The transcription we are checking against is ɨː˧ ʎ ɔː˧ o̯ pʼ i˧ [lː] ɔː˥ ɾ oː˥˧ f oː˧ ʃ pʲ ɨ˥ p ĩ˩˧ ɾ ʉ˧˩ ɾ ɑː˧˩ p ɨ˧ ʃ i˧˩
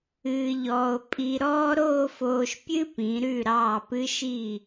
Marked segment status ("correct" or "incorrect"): incorrect